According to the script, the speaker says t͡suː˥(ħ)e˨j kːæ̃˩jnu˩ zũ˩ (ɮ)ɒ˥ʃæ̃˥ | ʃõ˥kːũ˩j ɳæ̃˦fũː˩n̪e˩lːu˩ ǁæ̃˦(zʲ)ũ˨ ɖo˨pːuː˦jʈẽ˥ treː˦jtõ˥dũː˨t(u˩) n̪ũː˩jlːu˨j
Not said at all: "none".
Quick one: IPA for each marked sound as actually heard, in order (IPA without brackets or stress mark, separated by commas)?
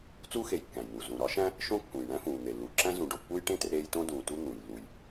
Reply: x, ɾ, z, u˥